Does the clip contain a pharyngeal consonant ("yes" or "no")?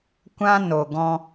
no